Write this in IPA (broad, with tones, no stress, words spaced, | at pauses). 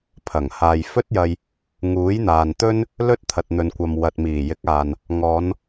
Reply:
pʰɐ˨˩ŋhaː˨j fɵ˥t̚jɐ˧j | ŋuː˨˥jn̪aː˨nt̪ɵ˥n | lɵ˥t̚t̪ʰɐ˨t̚n̪ɵ˨nkʷɐ˨m wɐ˨t̚miː˨˩jɪ˨˥k̚aː˨n | ŋɔː˨˧n